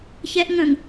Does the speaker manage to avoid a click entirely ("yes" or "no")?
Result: yes